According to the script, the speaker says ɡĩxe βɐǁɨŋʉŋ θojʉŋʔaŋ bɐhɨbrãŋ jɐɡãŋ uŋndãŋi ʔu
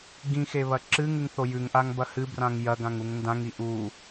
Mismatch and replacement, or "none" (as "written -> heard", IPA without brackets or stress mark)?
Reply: none